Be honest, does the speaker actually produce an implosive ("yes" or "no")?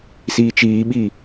yes